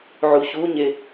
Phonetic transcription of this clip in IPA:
ʕ u ç u ɲ e

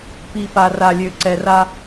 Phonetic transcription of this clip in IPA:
p i˨ p a˨ r a˨ lʲ ø˨ ǀ ɛ˨ r a˦

